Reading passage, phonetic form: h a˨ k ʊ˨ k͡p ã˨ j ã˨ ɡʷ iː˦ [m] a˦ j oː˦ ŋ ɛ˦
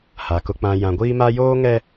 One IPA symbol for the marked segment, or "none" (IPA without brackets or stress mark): m